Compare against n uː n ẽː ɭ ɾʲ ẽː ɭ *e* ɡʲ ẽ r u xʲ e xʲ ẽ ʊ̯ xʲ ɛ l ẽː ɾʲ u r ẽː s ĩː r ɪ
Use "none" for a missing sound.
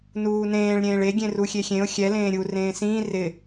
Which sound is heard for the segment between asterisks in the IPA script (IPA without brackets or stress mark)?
e